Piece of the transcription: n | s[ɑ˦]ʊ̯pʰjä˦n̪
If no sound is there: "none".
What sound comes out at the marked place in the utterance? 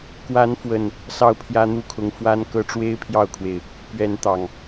ɑ˥˨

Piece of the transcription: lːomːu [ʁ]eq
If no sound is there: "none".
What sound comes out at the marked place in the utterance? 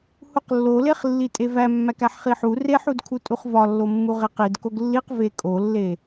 ʁ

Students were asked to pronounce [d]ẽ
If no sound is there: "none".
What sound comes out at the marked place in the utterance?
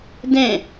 d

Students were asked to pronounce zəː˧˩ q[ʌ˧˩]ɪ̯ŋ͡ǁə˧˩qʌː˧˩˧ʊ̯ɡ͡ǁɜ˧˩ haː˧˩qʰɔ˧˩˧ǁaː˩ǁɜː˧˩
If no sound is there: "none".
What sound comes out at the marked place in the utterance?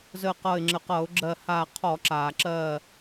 ʌ˧˩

